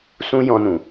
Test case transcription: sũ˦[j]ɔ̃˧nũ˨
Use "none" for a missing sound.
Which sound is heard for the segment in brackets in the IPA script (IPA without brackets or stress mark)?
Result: j